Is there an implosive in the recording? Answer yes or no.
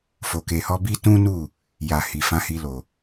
no